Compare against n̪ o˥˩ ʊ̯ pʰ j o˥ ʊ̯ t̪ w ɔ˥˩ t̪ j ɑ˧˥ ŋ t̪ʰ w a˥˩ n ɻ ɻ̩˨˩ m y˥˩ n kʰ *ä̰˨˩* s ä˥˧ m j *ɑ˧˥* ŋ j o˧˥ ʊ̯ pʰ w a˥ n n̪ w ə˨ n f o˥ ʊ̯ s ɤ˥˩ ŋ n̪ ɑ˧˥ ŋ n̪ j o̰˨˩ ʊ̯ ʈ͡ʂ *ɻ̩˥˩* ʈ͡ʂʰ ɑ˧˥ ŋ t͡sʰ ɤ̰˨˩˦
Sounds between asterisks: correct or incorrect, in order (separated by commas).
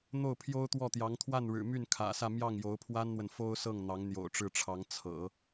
correct, incorrect, correct